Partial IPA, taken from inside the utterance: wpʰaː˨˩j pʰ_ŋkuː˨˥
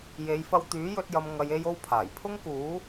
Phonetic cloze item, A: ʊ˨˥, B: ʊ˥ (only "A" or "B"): B